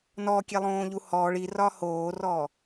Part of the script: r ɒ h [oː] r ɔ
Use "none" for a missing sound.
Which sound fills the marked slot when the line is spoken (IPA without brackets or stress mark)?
oː